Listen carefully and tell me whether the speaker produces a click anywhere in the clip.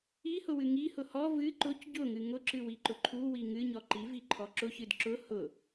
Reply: yes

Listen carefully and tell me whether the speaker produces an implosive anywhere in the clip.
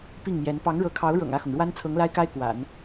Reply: no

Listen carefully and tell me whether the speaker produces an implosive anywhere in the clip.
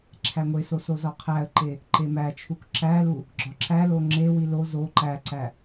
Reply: no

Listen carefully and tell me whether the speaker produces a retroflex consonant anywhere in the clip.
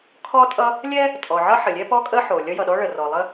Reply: yes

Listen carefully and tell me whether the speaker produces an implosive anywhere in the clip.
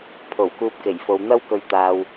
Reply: no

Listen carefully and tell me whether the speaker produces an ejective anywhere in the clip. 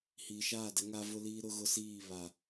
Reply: no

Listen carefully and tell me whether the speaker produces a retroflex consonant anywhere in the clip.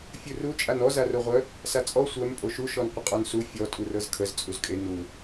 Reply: no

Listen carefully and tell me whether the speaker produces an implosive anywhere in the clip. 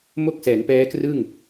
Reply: no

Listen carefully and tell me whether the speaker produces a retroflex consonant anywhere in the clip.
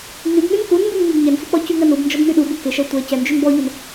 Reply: no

